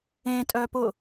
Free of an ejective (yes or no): no